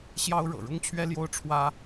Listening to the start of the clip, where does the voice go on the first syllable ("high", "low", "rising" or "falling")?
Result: high